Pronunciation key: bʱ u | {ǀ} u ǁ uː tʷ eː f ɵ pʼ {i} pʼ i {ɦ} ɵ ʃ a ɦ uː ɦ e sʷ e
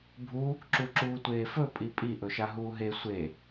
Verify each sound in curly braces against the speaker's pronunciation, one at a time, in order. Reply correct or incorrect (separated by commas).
incorrect, correct, incorrect